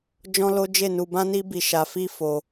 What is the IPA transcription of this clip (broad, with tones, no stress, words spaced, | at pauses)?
d͡ʒɔ̃˦lo˦ d͡ʒe˦˨nu˧bã˦ni˦ bi˦˨ ʃa˧fi˦ fo˧